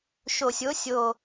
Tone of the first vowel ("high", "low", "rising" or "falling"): low